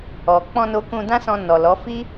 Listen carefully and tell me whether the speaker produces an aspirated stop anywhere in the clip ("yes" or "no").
no